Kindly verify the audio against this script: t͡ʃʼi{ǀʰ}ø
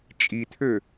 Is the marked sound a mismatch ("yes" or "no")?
yes